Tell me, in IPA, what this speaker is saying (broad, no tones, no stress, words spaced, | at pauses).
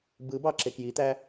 bɯbɑ ǁekjit̪æ